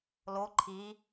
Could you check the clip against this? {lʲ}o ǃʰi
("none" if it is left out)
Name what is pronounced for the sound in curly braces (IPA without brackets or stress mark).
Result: l